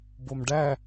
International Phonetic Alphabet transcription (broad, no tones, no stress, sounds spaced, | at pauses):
b o m ɖ æ